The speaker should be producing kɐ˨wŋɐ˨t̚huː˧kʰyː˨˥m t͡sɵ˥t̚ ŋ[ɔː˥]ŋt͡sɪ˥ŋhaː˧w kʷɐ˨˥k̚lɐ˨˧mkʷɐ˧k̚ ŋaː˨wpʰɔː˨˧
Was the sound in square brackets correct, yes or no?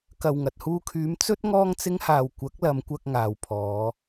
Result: yes